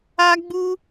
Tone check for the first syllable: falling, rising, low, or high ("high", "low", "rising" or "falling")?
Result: high